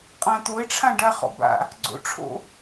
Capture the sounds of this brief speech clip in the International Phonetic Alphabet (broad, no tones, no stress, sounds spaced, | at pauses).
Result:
qʼ ã t̪ o e̯ ʈ͡ʂʰ ã ɖ a χ ɔ̰ b a̰ | ɡ͡ǀ o̰ ʈ͡ʂʰ o̰